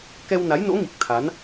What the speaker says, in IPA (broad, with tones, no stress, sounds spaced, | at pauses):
k ɛ˧ w n a˨˦ j n o̰˧˥ ŋ i˨˩ k̚ t̪ʰ a˨˦ n